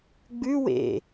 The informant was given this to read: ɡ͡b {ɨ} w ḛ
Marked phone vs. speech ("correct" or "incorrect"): incorrect